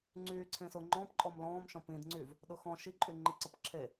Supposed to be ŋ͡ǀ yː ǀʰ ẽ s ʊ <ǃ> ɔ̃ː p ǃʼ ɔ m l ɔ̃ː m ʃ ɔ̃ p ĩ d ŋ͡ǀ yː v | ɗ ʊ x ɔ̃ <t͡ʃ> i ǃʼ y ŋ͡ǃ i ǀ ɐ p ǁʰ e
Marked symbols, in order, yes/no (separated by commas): no, no